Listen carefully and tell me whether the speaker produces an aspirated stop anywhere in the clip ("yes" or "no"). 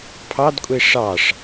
yes